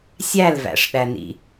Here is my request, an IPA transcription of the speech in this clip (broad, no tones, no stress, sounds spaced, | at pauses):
sʲ æ l v æ̰ ʂ ɗ æ n ḭ